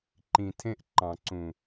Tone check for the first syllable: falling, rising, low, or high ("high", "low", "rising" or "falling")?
low